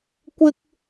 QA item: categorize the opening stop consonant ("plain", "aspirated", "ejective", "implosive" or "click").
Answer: plain